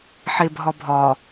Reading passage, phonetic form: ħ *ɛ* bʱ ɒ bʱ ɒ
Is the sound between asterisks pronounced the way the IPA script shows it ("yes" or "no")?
no